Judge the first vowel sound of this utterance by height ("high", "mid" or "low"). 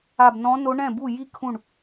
low